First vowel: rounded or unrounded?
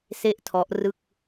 unrounded